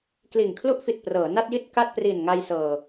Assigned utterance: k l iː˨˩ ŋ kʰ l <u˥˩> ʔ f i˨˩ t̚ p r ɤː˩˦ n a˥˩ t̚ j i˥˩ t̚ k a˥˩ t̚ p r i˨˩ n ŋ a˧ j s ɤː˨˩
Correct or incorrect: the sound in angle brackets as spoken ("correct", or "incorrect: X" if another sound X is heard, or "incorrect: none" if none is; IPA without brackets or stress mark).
correct